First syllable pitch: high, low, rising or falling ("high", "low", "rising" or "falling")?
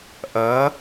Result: rising